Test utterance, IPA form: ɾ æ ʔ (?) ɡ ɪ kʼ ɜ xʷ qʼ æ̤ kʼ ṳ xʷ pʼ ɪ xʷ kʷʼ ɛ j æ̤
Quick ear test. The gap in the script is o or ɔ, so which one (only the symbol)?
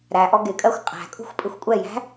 ɔ